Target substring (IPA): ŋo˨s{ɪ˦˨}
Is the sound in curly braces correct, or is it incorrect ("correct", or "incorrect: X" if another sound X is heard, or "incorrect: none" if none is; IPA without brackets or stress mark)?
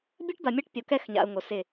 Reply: correct